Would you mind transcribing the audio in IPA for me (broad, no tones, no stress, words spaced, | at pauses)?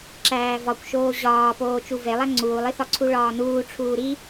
ǁæːvɒkʷʃoː ʑɒː poːt͡ʃuvelˠæ ŋ͡ǀuːlˠiθɒǀʰu ɭɒːnuːʈ͡ʂʰuː ɾi